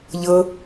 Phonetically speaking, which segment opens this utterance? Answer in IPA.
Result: ʎ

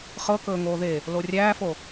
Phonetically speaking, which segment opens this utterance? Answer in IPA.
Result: χ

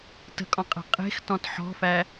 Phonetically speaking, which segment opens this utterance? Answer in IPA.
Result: t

